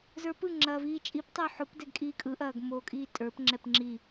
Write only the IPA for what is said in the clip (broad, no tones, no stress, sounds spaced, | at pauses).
z ə˞ p ɯ ŋ͡ǁ ɐː v iː t͡ʃʼ i p tˤ o ħ o p d ɛ ɡ kʼ iː kʼ ɯ ʔ ɐː ɡ m oː kʼ iː tʼ ə˞ p ŋ͡ǁ ɛ p ŋ͡ǁ i